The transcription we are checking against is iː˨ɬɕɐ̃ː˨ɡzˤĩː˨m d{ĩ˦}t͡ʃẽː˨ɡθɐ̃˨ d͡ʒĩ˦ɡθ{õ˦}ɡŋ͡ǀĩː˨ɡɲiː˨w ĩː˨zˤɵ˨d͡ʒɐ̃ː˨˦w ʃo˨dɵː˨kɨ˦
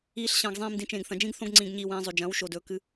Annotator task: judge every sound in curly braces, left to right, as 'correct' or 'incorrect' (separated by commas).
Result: incorrect, correct